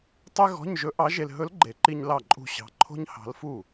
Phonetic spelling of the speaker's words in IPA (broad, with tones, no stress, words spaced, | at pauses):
tˤe˥ɣɔ̤˧˥˧ɲ ʒɵ˧˥ʔɑ˧˥ʒe˧l ɦɵ˧˥lɡ͡ǃe˨˩˦ǃi˧ɲ lɑ˥˩ǃʼṳ˥˩ɕɑ̤˧˥ ǃʰo̤˥ɲhɑ̤˧˥lfu˥˩